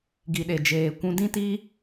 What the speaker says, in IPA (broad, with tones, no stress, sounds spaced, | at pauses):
ɡ i˨ ɗ e˨ d͡ʒ eː˨ kʷ ũ˧ d ĩ˦ t i˦